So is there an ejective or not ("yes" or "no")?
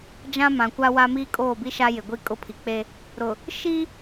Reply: yes